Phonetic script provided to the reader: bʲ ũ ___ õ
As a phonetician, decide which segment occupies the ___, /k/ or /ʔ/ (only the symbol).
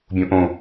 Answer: ʔ